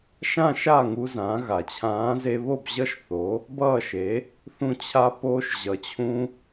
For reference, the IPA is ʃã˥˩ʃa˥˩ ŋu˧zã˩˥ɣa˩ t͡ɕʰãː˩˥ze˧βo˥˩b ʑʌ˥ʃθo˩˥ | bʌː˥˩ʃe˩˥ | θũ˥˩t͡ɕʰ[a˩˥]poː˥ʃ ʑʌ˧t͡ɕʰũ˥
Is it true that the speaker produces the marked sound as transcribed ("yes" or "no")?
no